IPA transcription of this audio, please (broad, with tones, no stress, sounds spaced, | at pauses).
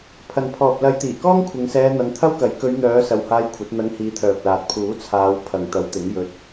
pʰ ɐ˨ n pʰ ɔː˨ p̚ l ɐ˨˧ j t̪ iː˨˩ k ɔː˥ ŋ kʷʰ ɪ˨˧ ŋ s ɛː˧ n̪ ɐ˨˧ ŋ t̪ʰ ɐ˥ w k ɐ˨˥ j k ɵ˨˧ ɥ n̪ œː˨˧ s ɐ˨ w h aː˧ j kʷʰ ɐ˨˥ t̚ n̪ ɐ˧ ŋ h iː˨˧ t̪ʰ œː˨ p̚ l aː˨ t̚ pʰ uː˨˥ t͡sʰ aː˨˧ w pʰ ɐ˨ ŋ t̪ ɐ˨˥ w t̪ ɪ˨˥ ŋ j ɵ˧ t̚